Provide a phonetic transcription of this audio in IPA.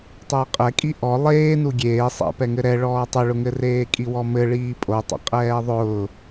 tˤ ʊː qʼ ɛ kʼ i ʔ ɔ lˠ eː n u ɡʲ eː sˤ ɛ̰ p ɛ ŋ ɘ ɾ ɛ ɭ ɔː tˤ ʊ ɭ ʊ ŋ ɘ r eː kʼ i w ɔ m ɘ ɭ iː pʼ o tˤ ɛ̰ qʼ ɛː ðˤ ʊː

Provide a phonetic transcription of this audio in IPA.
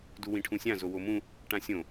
d u w ĩ ʈʰ ũ sʲ ã z o w o m ũ | ʈ ã sʲ õ

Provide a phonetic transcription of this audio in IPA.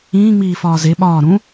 ĩː ŋ͡m iː f ɒː z e ɓ ɒː ɾ ũ

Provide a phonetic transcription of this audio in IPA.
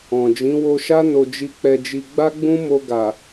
ɔ̃˨ d͡ʒ ĩ˨˦ w o˧ ʃ a˦ n o˧ d͡ʒ i˧ k͡p ɛ˧ d͡ʒ i˧ ɡ͡b a˦ ɡ͡b ũ˦ m o˧ ɡ a˨

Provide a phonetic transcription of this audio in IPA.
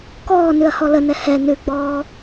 k ɔː n ʉ ɐ̯ h ɔ l ə n ɛ h ɛ n ʉ ɡ͡b ɔː

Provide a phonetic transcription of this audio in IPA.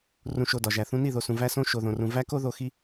r ũ˧ ʃ o˧ d ɒ˨ ʒ æ˨ θ ũ˧ n i˦˨ ð o˨ s ũ˨ v æ˦ s õ˦ ʃ o˨ ð õ˨ r ũ˨ v æ˦ k o˦ ð o˧ x i˦

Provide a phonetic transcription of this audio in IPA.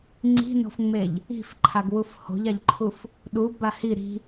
ŋ͡ǀ i̤ n o̤ f ŋ͡m e ʎ | i̤ f ǃʰ a ɡ w u f h o̤ ʎ a ʎ ǃʰ u f | ɗ u b a h i ɾ i̤

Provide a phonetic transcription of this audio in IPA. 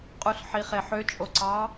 qʼ u ɬ ħ i χ e ħ ø t͡ʃʼ o ǀ ɑ

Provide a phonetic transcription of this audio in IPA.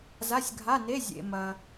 z a˧˥˧ sʲ ɡʱ a˧˥˧ n e˧˥˧ zʲ ḛ˨ m ɐ˨

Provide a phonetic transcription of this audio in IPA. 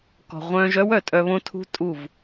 k ɔ̤˨ ʁʷ œ̃ː˧ ʒ œ˦ w œ˨ tʼ œ˧ β õ˦ tʰ ṳ˦ tʼ u˦˨ v

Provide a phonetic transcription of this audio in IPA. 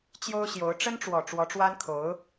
t͡ɕ j o˥ ʊ̯ ɕ j o˧˥ ʊ̯ ʈ͡ʂ ə˥ n ʈ͡ʂ w ɔ˨˩ ʈ͡ʂ w ɔ˧˥ ʈ͡ʂ w a˥ n kʰ o˧˥ ʊ̯

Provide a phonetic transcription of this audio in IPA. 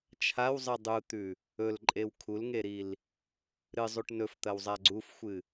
t͡ʃʰ a w zˤ ɨ dˤ u t̪ ʉ | ɵ l ǃʼ e w kʰ u l ŋ e ɾ i l | ɾ ɨ zˤ u ʈ n ɵ f t̪ ɐ w zˤ a ɡ͡ǀ u f xʷ ɨ

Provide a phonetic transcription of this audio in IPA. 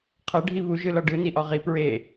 qʰ ɐ ɖʱ i β u ʒ ɯ l ɒ ɖ ɯ n i ʔ ɒ ʁ i p ɹ e

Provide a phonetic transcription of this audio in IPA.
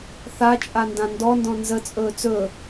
θ a t͡ʃʼ a n d ã n d ɔ n d ɔ̃ n z ə t͡sʼ ɵː t͡s ɵ

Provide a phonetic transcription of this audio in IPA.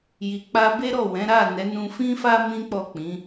j i˨ k͡p a˧ b e˦ ɾ ɔ˦˨ w ɛ̃˨˦ ɾ a˦˨ n ɛ˨˦ n ũ˧ f ĩ˦ f a˦ m ĩ˦ k͡p ɔ˦˨ k͡p ĩ˨˦

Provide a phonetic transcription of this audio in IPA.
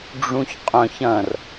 ɖ͡ʐ ũ ç qʼ œ̃ ç ɐ̃ r

